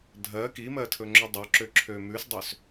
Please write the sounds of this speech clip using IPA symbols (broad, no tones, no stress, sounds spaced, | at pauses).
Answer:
dʱ ɜ k i m ɜ tʰ ɵ ŋ͡ǁ ɵ dˤ ɵ ǁ ø ǁʰ ø m ʉ s dˤ ø s